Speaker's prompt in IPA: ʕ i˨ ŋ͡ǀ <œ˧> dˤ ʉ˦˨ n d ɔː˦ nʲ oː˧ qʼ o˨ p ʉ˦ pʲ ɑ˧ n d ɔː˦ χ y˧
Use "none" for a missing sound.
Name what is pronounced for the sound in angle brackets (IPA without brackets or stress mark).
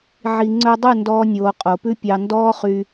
œ˧